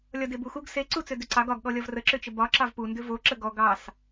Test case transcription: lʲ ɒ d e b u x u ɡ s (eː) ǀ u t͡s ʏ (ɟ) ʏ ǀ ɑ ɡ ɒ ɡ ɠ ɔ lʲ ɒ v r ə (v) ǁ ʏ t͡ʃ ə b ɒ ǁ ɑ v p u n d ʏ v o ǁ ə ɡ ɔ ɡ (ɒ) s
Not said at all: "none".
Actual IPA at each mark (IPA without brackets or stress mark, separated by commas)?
e, d, none, ɑ